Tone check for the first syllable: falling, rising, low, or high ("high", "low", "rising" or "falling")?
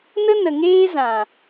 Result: high